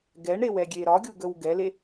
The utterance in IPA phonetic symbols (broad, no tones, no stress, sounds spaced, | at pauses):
ɡ ɛ ɳ ɾ e w ɛ ɡʲ e ɾ ɒ ɡʲ u ɡ ə w ɡ ɛ l e